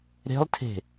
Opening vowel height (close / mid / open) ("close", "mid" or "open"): mid